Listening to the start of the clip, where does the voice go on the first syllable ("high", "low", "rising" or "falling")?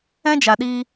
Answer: high